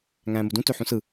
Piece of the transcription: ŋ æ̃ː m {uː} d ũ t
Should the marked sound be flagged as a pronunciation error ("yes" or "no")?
yes